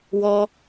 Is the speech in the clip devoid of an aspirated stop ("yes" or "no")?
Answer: yes